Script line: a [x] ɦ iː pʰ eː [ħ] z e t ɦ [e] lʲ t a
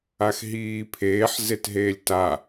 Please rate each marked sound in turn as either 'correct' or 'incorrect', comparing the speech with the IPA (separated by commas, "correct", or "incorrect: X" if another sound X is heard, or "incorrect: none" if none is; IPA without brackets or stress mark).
correct, correct, incorrect: eː